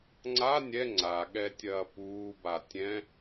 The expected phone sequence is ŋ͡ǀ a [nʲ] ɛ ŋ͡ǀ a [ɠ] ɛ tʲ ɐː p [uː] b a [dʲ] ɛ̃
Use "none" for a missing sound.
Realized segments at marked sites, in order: nʲ, ɠ, uː, tʲ

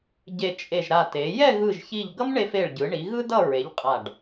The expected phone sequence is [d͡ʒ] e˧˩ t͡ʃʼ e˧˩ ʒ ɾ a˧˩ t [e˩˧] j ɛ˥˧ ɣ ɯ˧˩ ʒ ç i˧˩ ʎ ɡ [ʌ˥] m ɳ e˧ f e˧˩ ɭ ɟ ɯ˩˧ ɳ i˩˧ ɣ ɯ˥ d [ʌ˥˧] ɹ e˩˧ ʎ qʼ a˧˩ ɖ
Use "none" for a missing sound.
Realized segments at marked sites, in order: ɟ, e˩˧, ʌ˥, ʌ˥˧

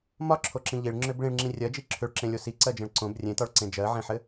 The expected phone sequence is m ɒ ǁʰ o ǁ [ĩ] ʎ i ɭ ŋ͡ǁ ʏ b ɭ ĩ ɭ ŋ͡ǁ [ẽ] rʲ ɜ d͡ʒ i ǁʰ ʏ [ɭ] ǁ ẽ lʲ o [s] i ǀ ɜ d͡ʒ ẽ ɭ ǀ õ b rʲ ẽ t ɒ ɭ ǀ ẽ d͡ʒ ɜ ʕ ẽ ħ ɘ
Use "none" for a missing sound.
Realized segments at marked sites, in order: ĩ, ĩ, ɭ, s

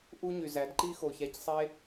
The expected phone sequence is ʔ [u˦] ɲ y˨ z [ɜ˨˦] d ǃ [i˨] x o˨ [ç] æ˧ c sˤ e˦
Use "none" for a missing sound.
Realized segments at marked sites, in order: u˦, æ˨˦, i˦, ç

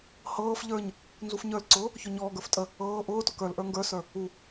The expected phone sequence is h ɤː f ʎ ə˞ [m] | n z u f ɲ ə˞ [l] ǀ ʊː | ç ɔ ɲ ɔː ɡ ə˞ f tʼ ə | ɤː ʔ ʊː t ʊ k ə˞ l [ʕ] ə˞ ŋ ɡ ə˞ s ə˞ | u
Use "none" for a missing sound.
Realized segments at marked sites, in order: ɲ, l, ʔ

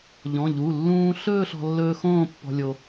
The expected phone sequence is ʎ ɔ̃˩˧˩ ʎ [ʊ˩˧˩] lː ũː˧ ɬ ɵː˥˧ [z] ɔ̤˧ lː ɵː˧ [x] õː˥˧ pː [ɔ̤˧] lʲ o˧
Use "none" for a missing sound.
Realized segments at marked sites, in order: u˩˧˩, ɬ, x, ɔ̤˧

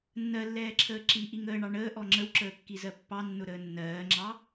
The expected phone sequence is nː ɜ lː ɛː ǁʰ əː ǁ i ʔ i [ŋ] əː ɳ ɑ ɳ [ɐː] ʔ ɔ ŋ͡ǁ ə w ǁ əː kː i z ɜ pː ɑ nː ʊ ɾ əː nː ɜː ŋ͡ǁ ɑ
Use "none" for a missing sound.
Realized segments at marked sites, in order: ŋ, əː

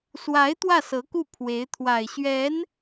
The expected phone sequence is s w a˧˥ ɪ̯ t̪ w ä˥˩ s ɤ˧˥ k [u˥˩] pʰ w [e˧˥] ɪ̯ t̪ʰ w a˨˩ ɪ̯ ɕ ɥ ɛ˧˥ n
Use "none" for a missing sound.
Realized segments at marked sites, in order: u˥˩, e˧˥

